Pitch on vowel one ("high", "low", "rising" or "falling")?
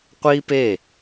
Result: high